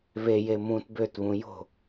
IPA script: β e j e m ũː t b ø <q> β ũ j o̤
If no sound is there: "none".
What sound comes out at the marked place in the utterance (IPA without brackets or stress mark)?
t